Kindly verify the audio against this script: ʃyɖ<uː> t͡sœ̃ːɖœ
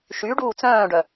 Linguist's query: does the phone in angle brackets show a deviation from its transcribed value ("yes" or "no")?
no